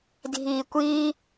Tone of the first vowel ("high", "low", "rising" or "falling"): low